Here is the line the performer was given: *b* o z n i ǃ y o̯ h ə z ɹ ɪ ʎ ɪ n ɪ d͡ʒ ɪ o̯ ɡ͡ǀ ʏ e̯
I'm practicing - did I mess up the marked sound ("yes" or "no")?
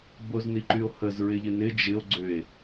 no